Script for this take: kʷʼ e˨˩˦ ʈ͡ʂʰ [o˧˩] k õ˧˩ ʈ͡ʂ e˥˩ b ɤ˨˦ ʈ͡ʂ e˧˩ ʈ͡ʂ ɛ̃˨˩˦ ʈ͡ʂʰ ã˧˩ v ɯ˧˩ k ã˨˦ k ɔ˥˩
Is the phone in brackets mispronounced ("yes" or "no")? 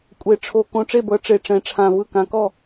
no